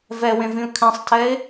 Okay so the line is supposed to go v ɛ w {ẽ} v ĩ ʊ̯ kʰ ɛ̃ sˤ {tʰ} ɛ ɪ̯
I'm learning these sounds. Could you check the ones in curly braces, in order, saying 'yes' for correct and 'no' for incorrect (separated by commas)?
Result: yes, yes